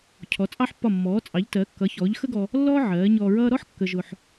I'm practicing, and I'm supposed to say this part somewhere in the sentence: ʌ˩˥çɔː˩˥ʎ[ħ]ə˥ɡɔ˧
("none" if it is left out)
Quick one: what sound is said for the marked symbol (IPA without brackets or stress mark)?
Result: x